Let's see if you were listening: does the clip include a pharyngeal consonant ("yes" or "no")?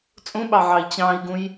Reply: yes